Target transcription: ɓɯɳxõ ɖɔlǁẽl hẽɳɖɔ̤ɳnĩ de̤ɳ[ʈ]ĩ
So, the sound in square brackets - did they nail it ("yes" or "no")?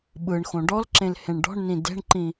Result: no